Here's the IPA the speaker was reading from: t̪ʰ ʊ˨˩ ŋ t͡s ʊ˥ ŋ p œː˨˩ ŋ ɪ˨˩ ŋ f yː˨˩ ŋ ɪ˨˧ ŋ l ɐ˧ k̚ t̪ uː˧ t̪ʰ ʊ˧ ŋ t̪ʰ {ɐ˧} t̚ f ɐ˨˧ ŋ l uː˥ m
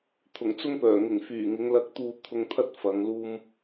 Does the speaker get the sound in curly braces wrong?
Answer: yes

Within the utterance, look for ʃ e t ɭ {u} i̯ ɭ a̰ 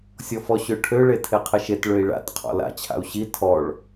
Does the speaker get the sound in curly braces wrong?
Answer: yes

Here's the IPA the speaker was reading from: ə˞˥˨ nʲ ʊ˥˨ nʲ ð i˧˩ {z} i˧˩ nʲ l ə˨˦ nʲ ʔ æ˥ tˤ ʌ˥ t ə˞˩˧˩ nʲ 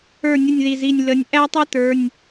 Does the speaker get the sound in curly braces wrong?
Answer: no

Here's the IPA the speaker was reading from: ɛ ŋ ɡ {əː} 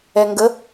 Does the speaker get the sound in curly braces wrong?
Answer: yes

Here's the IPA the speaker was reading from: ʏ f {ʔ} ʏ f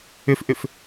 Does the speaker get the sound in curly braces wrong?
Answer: no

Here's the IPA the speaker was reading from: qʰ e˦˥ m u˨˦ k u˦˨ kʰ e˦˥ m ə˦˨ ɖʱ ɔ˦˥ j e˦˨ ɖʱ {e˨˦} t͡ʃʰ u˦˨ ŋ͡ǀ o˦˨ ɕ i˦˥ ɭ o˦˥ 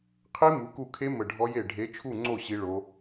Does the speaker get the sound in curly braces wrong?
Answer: no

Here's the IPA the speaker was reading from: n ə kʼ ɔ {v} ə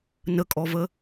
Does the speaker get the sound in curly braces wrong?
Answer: no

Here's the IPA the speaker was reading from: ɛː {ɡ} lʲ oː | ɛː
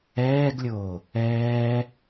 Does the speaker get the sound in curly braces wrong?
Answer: no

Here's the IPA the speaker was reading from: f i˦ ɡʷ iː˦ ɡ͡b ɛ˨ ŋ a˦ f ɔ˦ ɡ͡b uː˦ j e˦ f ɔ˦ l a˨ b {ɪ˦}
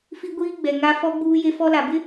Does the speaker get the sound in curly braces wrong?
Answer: no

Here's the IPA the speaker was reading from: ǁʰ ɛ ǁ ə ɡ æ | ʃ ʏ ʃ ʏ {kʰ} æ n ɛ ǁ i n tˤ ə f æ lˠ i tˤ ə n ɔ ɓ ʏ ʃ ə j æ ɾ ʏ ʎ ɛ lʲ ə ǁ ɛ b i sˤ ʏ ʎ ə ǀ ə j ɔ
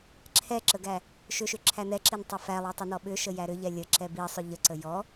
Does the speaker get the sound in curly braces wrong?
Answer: yes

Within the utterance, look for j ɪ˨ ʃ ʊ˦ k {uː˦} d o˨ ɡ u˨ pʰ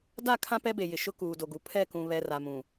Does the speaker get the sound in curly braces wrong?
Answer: yes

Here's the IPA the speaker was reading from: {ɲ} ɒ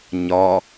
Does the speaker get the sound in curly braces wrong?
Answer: no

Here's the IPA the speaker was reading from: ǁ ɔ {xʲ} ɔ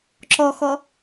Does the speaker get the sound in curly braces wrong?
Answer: yes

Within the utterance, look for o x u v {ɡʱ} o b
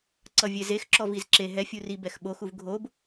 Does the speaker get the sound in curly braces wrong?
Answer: no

